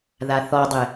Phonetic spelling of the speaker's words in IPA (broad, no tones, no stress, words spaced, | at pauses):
ðaθɔdˤe